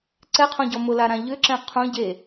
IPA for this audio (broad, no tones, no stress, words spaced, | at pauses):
ǀɛqʰɔ̃ɟɔ mʊlaɾã ʎʏǁɛ̃ qʰõ ɟe